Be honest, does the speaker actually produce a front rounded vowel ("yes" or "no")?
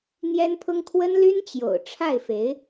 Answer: yes